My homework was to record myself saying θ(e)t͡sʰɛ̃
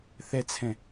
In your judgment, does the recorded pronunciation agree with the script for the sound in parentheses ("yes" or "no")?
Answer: no